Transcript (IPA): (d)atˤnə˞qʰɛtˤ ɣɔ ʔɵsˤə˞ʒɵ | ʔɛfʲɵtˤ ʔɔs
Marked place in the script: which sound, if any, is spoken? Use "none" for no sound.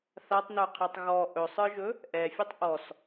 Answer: θ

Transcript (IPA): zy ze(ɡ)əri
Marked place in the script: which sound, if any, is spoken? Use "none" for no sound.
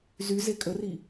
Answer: kʼ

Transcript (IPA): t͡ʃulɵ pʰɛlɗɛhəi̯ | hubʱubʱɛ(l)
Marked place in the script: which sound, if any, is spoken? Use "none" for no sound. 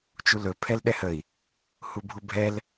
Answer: l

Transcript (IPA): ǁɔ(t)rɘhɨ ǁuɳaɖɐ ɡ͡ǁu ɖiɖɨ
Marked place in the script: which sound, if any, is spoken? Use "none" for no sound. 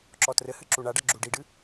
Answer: t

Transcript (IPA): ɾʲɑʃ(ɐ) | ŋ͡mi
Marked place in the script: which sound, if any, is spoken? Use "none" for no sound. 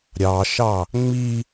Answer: ɑ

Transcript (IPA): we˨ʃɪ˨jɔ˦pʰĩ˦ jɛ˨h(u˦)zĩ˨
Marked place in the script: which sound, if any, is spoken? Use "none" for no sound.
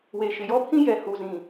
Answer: u˨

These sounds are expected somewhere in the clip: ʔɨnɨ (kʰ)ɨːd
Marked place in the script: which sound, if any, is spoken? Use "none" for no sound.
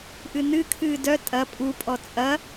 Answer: kʰ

